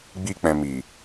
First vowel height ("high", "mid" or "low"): high